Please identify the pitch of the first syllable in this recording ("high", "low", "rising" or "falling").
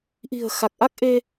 low